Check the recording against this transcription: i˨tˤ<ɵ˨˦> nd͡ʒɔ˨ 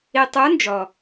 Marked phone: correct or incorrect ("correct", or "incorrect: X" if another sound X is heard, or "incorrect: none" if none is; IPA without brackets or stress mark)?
correct